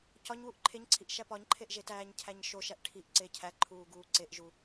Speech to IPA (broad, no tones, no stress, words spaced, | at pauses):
cɒɲwuʔ ǃʰeɲǀʰiʔ ʃæpɒɲǃʰeʔ ʒetæːɲcʰæɲ ʃoʃæʔ ʈʰiʔ ǀecʰæǃʰuː ɡuːǀeʔʒu